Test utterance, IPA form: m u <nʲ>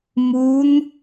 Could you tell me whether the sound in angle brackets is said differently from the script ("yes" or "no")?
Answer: yes